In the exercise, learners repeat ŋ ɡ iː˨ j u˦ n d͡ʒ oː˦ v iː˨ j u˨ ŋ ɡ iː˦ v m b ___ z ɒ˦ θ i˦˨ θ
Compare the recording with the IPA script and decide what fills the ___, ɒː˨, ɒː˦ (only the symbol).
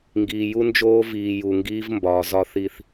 ɒː˨